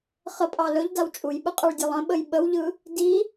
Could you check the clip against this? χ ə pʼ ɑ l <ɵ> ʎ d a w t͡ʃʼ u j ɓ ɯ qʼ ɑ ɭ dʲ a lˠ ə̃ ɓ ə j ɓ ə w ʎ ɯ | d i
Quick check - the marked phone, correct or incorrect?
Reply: correct